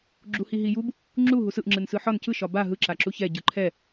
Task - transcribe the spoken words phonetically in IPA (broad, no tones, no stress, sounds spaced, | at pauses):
ɡ͡ǁ u h i ɦ i j u b | ŋ͡ǁ u ɦ u s ɯ ʔ ŋ͡ǁ ɯ n s ɯ ħ ɒ n c ɯ ʃ ɒ b a ɦ ɯ ǁ a ǁ u ç ɛ ɟ ɯ ǃʰ ɛ